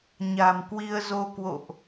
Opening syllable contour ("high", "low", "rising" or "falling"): low